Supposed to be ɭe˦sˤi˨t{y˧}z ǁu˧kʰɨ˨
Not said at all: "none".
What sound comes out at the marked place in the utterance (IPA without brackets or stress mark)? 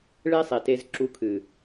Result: e˧